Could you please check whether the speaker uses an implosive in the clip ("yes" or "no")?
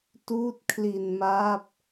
no